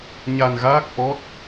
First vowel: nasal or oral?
oral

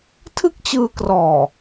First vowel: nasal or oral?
oral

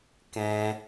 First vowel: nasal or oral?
nasal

